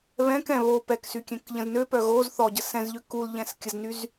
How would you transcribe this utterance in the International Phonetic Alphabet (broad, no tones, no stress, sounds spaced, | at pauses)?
β ɛ̃ k ɛ̃ β o p ɛ k s y kʲ ɛ̃ k ʎ ə̃ z n ø p œ ɣ o z θ ɔ ɟ ə s ɛ̃ z ʎ ø k u l ʎ ɛ̃ s kʲ ə z n y z